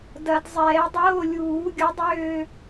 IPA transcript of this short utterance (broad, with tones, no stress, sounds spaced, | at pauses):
d ɐ˨˩˦ d zˤ ɛː˨˩˦ dˤ oː˧˥˧ lʲ uː˨˩˦ ɡʲ ʊ˨˥ dˤ øː˦˨